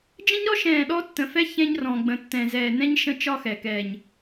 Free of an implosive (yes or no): no